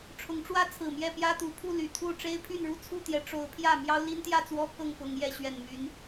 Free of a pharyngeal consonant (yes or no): yes